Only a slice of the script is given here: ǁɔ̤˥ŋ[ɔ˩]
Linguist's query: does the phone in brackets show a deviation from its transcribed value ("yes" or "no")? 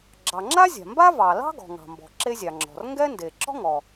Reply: no